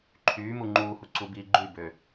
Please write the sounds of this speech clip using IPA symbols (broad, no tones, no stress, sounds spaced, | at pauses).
ǃʰ yː m u ŋ͡ǃ uː h u ǀ u b iː ɡ͡ǃ y b ø